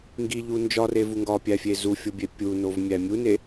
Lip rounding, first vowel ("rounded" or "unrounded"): unrounded